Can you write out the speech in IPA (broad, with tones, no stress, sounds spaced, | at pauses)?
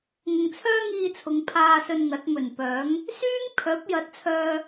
ŋ ʊ˨ ŋ t͡sʰ œː˥ ŋ iː˧ t͡sʰ ʊ˨˧ ŋ pʰ aː˧ s ɵ˧ n ŋ ɐ˨˥ t̚ m ɵ˨˩ n p œː˨˥ ŋ | s yː˥ ŋ pʰ œː˨˥ p̚ j ɐ˨˥ t̚ t͡sʰ œː˧